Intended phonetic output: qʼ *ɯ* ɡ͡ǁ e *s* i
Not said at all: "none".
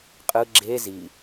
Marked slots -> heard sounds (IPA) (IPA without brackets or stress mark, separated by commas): ɯ, z